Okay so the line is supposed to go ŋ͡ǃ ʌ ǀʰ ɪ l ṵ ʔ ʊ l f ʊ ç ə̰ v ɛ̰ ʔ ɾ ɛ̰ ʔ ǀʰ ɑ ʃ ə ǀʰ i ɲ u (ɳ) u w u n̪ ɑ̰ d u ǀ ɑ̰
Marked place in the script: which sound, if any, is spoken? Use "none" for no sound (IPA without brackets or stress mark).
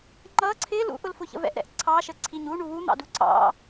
ɳ